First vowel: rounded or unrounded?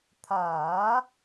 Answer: unrounded